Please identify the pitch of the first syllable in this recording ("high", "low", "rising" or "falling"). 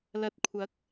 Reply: low